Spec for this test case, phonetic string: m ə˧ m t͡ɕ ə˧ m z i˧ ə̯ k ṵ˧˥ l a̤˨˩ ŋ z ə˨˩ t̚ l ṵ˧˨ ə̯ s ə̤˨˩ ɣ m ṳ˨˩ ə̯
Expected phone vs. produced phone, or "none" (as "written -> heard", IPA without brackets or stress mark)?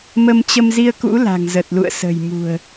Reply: ɣ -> j